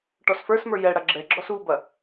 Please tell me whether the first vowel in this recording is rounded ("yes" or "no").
yes